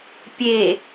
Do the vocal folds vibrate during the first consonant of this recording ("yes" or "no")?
no